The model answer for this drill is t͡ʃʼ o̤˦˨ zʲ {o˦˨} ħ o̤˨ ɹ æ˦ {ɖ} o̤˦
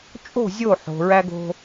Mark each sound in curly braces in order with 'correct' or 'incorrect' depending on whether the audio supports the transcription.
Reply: correct, incorrect: ɡ

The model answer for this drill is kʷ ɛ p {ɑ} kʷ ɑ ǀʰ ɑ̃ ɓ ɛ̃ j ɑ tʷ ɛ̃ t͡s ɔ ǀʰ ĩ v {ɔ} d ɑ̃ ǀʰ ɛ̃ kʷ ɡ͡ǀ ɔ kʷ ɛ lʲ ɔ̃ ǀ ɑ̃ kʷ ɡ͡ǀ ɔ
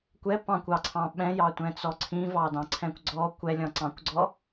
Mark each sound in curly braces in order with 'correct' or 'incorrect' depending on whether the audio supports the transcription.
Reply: incorrect: ɑ̃, incorrect: ɑ

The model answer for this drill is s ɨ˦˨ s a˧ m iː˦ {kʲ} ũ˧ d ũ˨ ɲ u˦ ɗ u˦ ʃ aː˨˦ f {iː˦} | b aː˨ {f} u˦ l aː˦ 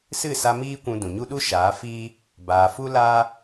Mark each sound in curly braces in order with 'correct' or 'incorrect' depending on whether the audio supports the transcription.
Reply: incorrect: kʷ, correct, correct

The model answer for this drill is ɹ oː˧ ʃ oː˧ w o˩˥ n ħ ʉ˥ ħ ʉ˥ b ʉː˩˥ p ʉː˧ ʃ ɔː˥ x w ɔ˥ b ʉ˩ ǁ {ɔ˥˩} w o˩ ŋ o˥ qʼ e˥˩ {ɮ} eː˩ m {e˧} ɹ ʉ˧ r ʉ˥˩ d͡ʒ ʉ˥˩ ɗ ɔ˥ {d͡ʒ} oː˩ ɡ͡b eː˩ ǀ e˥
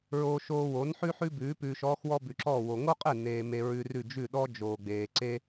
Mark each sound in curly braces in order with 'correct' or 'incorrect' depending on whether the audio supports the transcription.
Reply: correct, incorrect: n, correct, correct

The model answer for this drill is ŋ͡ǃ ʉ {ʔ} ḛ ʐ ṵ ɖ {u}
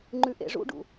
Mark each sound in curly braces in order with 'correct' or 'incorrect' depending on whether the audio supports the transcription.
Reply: correct, incorrect: ṵ

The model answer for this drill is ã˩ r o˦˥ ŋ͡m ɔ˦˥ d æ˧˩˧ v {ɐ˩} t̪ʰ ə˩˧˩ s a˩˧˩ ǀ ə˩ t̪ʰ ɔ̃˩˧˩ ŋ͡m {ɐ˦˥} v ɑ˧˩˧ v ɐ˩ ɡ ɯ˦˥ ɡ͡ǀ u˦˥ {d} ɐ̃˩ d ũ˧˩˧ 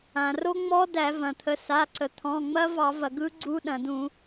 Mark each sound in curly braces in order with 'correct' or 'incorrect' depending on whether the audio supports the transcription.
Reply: incorrect: ɐ̃˩, correct, incorrect: ɗ

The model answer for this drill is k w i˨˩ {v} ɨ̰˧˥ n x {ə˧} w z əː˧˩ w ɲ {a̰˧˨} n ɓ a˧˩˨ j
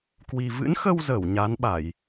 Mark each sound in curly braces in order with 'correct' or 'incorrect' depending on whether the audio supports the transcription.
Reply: correct, correct, incorrect: a˨˦

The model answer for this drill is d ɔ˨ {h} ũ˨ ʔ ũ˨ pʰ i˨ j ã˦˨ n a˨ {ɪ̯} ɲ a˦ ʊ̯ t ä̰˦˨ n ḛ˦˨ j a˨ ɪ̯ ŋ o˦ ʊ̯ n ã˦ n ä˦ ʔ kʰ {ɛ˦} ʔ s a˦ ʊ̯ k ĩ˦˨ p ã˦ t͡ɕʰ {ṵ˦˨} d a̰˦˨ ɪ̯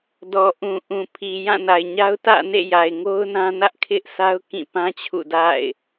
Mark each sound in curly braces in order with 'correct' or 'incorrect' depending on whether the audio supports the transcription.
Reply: incorrect: ʔ, correct, incorrect: ɪ˦, correct

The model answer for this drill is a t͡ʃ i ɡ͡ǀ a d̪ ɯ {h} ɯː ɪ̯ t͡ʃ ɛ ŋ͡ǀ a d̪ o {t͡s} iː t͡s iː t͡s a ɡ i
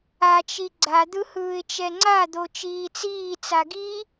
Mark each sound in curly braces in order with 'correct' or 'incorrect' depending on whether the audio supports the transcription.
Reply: correct, incorrect: t͡ʃ

